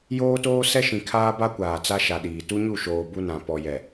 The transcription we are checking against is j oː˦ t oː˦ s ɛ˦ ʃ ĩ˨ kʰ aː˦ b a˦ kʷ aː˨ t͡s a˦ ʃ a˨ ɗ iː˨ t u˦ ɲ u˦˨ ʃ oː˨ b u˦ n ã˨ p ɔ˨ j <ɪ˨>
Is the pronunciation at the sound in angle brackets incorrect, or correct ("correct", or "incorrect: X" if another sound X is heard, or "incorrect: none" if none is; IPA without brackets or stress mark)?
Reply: incorrect: ɛ˨